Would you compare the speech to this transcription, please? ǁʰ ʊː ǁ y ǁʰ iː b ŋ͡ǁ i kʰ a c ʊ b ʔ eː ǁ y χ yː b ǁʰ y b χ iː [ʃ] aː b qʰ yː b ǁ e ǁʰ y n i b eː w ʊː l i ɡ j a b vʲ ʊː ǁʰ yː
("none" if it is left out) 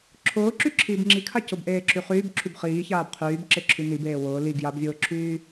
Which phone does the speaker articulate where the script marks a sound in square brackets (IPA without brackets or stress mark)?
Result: ç